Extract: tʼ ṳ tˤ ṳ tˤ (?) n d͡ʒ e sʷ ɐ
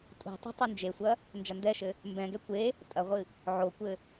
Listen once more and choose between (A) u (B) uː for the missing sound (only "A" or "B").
A